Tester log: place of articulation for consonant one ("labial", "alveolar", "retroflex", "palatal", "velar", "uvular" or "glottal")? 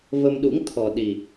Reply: labial